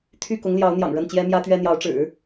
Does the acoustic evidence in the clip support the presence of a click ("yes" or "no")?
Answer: no